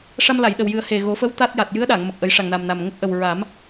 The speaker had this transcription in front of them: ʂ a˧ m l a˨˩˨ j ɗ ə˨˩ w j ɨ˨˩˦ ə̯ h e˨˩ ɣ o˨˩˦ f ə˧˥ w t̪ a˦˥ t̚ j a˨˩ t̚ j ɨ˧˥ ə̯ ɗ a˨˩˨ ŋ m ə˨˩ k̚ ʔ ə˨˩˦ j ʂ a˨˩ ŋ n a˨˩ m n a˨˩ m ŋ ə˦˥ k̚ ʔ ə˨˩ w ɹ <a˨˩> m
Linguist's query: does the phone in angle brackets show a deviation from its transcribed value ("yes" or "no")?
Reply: yes